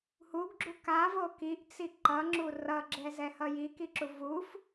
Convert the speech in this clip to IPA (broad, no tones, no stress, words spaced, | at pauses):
huɡɡ͡ǁu kavo kiʔt͡si ǃʌŋ͡ǁu rʌɡ͡ǁɛzɛhʌ jikiǁu vuf